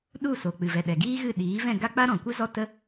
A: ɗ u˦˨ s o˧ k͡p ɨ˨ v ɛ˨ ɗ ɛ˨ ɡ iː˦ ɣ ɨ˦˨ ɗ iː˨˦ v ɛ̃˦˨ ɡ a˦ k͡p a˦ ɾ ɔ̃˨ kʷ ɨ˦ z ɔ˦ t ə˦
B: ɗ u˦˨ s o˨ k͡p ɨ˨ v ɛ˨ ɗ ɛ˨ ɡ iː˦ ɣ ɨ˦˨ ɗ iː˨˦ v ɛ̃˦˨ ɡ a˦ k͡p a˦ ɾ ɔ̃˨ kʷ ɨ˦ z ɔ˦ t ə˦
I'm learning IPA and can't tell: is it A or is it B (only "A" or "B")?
B